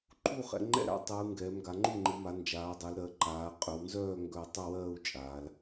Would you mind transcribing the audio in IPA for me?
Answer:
ǃʰ u˥˩ χ ɛ̰˩˧ ŋ͡ǃ ɛ̰˥˩ ɾ a̰˥˧ tˤ ɯː˩˧ ŋ ɡ ɛː˩˧ m ɡ a˩˧ ŋ͡ǃ u˥˩ ŋ͡ǃ ɯ˩˧ m a˩˧ n d͡ʒ aː˩˧ dˤ ɜ˩˧ l ɾ ɜ˩˧ ǃ aː˩˧ qʼ ʏ˩˧ w n z œː˥˧ ŋ ɡ œ˥˧ tˤ œ˥˧ w ɜː˥˧ u̯ t͡ʃʼ aː˩˧ l

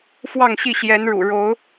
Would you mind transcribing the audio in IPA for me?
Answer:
f w ɑ˥˨ ŋ ɕ i˥˨ ɕ j ɛ˨˦ n ɻ ṵ˨˩ ɻ o˨˦ ʊ̯

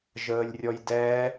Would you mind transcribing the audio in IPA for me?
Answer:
ʒ əː lʲ rʲ ɔ j d ɛː

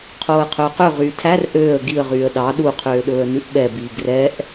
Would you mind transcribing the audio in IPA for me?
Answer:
qʰ oː ə̯ qʰ ɵː q ø ʁ yː tʰ æ r ʔ øː ə̯ ɡ i ə̯ ʁ yː ə̯ ɗ ɑ ɗ u qʰ øː ɗ ɵː ə̯ n ʉ ʔ ɓ ɛ b iː ɡ r ɛ ʔ

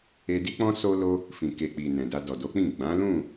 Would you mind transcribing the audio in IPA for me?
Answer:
e˧ d i˦ k͡p ɔ̃˦ s o˦ l o˦ | f ĩ˨ k e˨ k͡p i˨ n ɛ̃˨ d a˧ d ɔ˨ d o˨˦ k͡p ĩ˦˨ ɡ͡b ã˨˦ l ũ˦˨

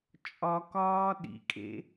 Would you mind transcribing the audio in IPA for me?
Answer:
t͡ʃʼ ɒ k ɒː ɗ ḭ kʼ ḛ

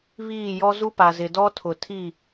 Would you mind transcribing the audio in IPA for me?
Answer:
β iː˦˨ j ɔ˦ z u˦ p a˨ z ɪ˨ d ɔ˦ tʰ ʊ˨ tʰ i˦˨

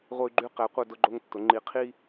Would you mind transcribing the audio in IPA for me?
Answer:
ʁʷ ə˦ y̯ ɡ͡ǃ y˦ q ɛ˨˦ qʷ œ˦ d ʊ˦ ɡ͡ǃ o˦ ŋ tː ʊ˨˦ ŋ͡ǃ i˨˦ qʰ i˦

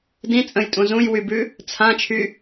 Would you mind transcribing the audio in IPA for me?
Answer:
d ĩ t͡sʼ ə̃ j tʼ ũ z ũ j w y b ʉ | t͡sʰ ã t͡ʃʰ y

